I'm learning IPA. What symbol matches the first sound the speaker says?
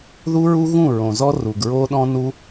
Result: ð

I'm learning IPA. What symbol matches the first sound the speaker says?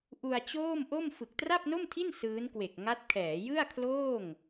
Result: ʔ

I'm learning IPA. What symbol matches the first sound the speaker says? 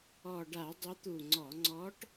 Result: ɔ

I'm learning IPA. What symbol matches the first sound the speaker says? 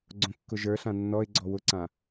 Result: ɡ͡ǀ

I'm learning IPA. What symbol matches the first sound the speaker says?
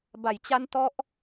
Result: b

